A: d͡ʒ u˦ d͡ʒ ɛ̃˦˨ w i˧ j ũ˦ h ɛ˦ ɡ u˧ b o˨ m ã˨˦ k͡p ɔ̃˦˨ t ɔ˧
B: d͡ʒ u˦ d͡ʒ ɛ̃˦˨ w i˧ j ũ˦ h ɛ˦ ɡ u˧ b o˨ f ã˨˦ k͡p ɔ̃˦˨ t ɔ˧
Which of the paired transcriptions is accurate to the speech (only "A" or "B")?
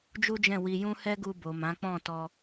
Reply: A